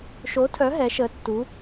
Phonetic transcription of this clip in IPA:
ʃ o˨˦ tʰ œ˨˦ ɦ ɛ˨˦ ʃ ə˨˦ tː u˨˦

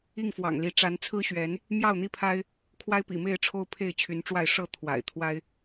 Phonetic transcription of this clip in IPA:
i˥˨ ŋ f w ɑ̰˨˩ ŋ l i˨˦ ʈ͡ʂ a˨˦ n t͡sʰ ɹ̩˦ ɕ ɥ ɛ˨˦ n | m j ɑ˥˨ ʊ̯ n̪ i˦ pʰ a˦ ɪ̯ | kʰ w a˦ ɪ̯ p ḭ˨˩ m e˥˨ ɪ̯ ʈ͡ʂʰ o˦ ʊ̯ pʰ e˥˨ ɪ̯ t͡ɕʰ y˨˦ n ʈ͡ʂ w a˥˨ ɪ̯ ʂ ɤ˥˨ t̪ʰ w a̰˨˩ ɪ̯ t̪ʰ w a˦ ɪ̯

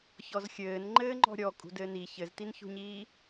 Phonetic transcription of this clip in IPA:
ç ɔ z xʲ ɘː n ŋ͡ǃ ɘː ŋ͡ǃ ɔ̤ ɾʲ ɔ kʼ ṳ d ɘː n i ç ɘ z t i n ç ṳ ɲ iː

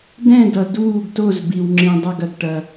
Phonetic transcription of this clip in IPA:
d ɛ̃˦˨ d ʌ˨ d uː˦˨ ɡ t o˦˨ z b i˨ w ŋ͡ǁ ĩ˨ dˤ ʌ˦˨ ɡ ɐ˨ ɡ ʈ ɐ˨

